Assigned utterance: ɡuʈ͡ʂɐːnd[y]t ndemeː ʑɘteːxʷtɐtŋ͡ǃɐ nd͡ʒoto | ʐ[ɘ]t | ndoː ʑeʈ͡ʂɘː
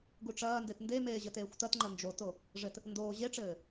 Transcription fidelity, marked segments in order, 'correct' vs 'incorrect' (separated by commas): incorrect, correct